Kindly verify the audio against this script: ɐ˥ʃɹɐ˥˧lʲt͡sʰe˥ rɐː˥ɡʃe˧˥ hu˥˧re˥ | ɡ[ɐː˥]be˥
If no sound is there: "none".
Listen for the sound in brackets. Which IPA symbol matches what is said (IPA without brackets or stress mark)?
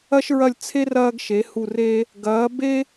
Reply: ɐː˧˥